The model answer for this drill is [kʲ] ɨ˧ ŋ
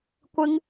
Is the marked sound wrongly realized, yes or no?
yes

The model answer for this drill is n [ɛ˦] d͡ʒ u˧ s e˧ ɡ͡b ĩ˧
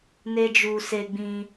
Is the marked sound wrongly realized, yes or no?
yes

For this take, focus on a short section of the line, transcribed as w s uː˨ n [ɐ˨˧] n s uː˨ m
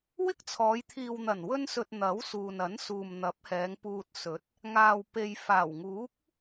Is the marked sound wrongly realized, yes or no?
yes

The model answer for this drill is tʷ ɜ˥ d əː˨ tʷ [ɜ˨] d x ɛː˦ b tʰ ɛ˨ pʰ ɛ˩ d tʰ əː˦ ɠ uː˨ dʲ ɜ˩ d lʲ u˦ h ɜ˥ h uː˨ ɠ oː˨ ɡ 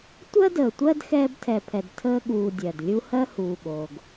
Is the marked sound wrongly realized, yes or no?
yes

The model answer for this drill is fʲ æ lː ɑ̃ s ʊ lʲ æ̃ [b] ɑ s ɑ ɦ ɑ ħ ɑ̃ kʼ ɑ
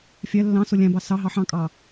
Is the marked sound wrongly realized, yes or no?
no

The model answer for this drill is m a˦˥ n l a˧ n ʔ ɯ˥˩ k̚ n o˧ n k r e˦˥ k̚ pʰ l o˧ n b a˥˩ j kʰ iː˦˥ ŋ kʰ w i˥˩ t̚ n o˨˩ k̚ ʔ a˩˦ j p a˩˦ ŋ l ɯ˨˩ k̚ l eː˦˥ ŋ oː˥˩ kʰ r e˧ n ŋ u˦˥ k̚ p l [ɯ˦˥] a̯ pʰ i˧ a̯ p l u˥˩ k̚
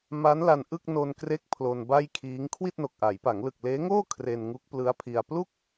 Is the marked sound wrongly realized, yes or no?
no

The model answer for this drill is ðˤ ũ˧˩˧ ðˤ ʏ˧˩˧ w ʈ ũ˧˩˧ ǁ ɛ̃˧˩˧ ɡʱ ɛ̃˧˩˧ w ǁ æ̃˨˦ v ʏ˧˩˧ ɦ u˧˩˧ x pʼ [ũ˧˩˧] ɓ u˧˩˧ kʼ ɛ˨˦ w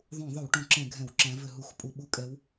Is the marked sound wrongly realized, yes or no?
yes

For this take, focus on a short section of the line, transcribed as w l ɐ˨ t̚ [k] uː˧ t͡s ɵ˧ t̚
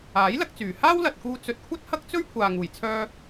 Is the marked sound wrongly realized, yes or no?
no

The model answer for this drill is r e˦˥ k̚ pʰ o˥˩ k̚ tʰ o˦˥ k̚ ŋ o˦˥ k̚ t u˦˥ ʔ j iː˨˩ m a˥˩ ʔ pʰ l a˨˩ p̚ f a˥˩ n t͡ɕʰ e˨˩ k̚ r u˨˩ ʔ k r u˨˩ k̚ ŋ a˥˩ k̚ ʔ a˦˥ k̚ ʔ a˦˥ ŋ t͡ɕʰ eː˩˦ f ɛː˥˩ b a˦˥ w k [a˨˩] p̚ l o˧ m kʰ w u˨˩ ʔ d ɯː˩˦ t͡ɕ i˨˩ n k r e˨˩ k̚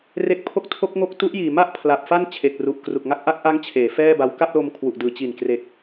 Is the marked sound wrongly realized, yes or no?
yes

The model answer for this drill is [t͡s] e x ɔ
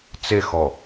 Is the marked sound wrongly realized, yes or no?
no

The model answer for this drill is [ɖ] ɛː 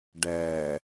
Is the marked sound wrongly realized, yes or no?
no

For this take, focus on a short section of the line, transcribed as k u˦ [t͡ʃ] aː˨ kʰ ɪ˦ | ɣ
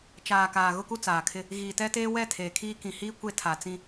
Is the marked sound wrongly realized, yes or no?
yes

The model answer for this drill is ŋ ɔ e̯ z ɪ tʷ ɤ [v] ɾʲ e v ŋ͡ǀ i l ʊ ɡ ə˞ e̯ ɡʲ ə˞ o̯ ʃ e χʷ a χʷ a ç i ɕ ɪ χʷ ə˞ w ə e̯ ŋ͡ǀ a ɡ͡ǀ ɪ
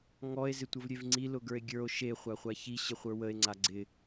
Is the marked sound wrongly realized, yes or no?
no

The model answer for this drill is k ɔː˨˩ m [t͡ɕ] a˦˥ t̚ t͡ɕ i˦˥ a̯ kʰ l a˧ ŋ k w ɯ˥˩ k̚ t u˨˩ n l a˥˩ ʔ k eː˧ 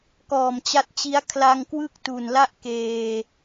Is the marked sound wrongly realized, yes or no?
no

